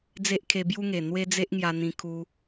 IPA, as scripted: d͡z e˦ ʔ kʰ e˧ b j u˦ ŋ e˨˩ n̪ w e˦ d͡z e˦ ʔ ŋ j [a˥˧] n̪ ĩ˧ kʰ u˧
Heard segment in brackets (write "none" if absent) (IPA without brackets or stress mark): a˧